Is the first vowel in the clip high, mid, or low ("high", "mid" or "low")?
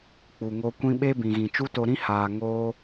high